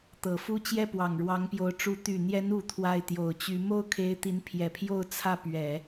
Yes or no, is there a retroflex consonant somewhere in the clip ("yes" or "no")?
yes